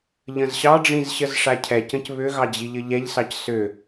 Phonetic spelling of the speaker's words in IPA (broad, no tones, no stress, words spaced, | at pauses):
ʎə̃zɕɑɖ͡ʐĩz ɕəzʂacʰɛcə̃c βʏɣɑ d͡ʑiʎɘʎɛʎsɑc sʏ